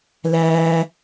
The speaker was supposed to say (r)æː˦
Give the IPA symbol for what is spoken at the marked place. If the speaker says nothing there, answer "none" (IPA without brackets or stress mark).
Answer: l